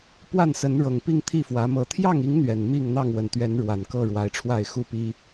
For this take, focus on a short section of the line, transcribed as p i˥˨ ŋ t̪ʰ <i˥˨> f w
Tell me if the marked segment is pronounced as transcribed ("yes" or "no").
yes